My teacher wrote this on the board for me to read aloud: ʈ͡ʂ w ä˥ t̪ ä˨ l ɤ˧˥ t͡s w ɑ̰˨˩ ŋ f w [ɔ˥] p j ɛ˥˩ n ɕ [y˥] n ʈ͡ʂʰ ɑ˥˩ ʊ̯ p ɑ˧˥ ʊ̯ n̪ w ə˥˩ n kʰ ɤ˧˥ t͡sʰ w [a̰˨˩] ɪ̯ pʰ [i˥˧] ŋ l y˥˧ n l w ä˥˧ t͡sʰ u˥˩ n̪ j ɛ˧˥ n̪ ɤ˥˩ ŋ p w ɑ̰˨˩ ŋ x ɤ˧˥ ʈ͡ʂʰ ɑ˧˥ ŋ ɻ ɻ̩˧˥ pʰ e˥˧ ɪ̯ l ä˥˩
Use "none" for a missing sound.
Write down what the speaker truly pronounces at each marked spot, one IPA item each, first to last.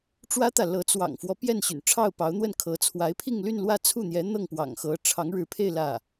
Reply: ɔ˦, y̰˨˩, a˧˥, i˥˧

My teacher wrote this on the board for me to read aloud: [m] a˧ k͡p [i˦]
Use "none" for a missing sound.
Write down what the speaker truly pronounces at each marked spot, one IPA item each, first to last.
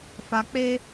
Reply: f, e˦

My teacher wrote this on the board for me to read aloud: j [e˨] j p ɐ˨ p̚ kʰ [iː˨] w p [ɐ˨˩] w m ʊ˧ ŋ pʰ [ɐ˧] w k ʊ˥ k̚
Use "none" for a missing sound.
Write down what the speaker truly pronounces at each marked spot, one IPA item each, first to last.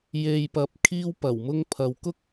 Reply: e˨, iː˧, ɐ˨˩, ɐ˨

